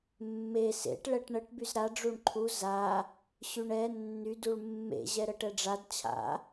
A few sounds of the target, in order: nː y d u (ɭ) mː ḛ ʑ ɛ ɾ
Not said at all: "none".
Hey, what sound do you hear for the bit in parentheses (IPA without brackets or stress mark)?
ɭ